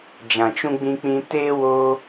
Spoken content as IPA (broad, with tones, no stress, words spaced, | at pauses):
d͡ʒã˨t͡ʃũ˧ɡ͡bĩ˧k͡pĩ˧ teː˦wo˦